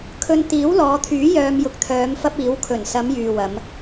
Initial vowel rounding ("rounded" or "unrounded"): rounded